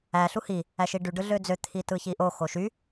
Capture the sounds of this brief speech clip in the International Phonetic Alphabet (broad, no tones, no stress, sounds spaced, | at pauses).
æ ɬ u h i | æ ʃ i ɖ y ɖ ɯ ɮ ø d͡z ø t̪ʰ i t ɯ ç i ʔ o x o ʃ y